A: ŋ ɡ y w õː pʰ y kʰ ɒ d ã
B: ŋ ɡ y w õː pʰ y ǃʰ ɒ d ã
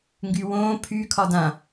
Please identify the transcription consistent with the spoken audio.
A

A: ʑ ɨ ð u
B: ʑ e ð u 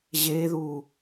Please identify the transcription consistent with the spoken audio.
B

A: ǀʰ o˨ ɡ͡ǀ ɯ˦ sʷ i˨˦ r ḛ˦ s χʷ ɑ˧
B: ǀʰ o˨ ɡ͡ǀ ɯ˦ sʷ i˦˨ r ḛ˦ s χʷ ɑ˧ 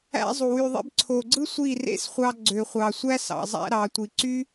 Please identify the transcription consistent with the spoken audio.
B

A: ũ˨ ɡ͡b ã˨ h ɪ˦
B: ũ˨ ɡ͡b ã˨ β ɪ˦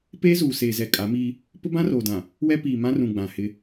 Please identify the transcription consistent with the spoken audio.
A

